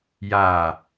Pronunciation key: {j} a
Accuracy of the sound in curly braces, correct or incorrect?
correct